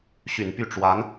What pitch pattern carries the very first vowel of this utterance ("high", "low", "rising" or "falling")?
low